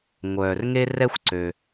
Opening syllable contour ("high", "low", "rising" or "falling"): low